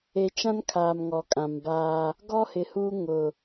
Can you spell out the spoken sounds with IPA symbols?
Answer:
e˨ t͡ʃ ã˦ n kʰ aː˨ m ŋ ɔ˨ kʼ ã˨ m b aː˦ | ɡ ɔ˦ h ɪ˨ h uː˦ ŋ ʊ˨

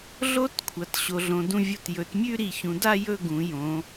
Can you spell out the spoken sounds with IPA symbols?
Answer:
ɮ o˥ t kʷʰ ɐ˩˧ t ɕ o˩˧ ɮ õ˩˧ d ũ˧ vʲ o˧˩ t j ɵ˩˧ t mʲ ʉ˥˧ ɾ i˧˩ ç ũ˩˧ d a˥˧ j ɵ˥˧ ɡ ũ˩˧ j õ˩˧

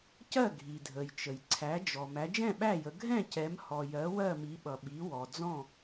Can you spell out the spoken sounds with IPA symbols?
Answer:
c ɜ˥˨ ɡʱ i˩ dʱ ə˩ j t͡ʃ ə˩ j ǀʰ æ˩˧ d͡ʒ ɔ˩ m æ˩˧ d͡ʒ ɛ̃˥˨ ɓ æ˥˨ j ə˩˧ ɡʱ ɛ̃˥˨ c ɛ˩˧ m h ɔ˩ j ɜ˩˧ w ɜ˥˨ m i˩˧ ɓ ʌ˩ ɓ i˩˧ w ɔ˩ d͡z ɔ̃˥˨

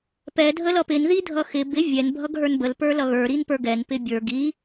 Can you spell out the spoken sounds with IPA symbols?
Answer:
p ɛ dʱ ə l ʌ p ɪ n ð i dʱ ʌ x ɪ b ɪ vʲ ɛ n bʱ ʌ ɡ ɦ ə˞ n b ə l p ə˞ l ʌ ɣ ə˞ ɾ i n p ə˞ ɡ ɛ n p ɪ bʲ ə˞ ɡ i

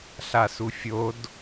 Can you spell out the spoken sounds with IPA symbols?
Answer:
ɬ a s u fʲ o d

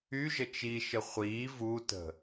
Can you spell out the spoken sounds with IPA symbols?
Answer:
y ʒ ə t͡ʃ i ʃ ə χʷ iː v u t ə̤

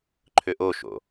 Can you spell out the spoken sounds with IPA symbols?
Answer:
ǃʰ ʏ ʔ o ʃ o̰

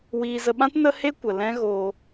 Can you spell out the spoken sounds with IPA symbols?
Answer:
w iː˧ z ə˧ ɓ ã˦ t n ə˦ h e˦ kʷ ə˨ l ɛ̃˦ ɣ oː˧

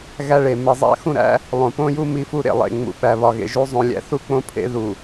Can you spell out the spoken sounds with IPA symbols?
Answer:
ɣ æ˦ ɭ e˨ m e˨ zˤ æ̰˦ x ũ˦˨ ɾ æ̰˦ | lˠ õ˨ p õ˦ j u˦ m i˦ f u˦ ɾ ḛ˨ lˠ ḛ˨ ŋ͡m ṵ˨ ɓ æ˨ β ɒ˨ ɣ ḛ˨ ʒ u˦ zˤ õ˨ lʲ æ̰˨ θ u˦ k͡p õ˦ pʰ ḛ˦ ð u˨

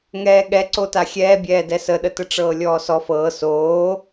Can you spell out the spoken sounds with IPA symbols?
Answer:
ŋ ɛː ɠ ɛ ǀ o t a xʲ ɛː bʲ ɛː d ɛ s ə ɗ ə t ə ʈ͡ʂ ɤː lʲ ɔː s ɔ f ɤː s oː

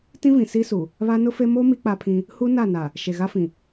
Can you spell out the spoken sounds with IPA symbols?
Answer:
t ĩ˦ v ĩ˨ s i˦ s u˨ | β a˦ n ʊ˦ f e˦ m o˦ m i˦ k͡p a˦ pʰ ĩ˦ | h u˦ n a˦˨ n a˨ | ʃ e˨ ɣ a˦ f ĩ˨

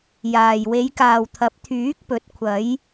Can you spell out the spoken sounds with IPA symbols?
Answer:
j aː˨ j w e˨˧ j k aː˨ w t̪ʰ ɐ˨˥ p̚ t̪ʰ yː˨˥ k̚ p ɵ˨˥ t̚ kʷʰ ɐ˨˧ j

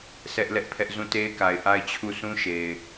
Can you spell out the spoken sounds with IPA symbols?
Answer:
s ɛ˦ ʔ l ɛ˦ ʔ pʰ ɛ˦ ʔ z ũ˦˨ t e˦ ɪ̯ k a˨ ɪ̯ ʔ a˦˨ ɪ̯ t͡ɕʰ u˦˨ s ũ˦ ʃ e˨ ɪ̯

